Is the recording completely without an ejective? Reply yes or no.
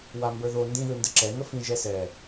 yes